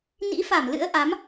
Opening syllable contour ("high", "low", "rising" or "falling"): rising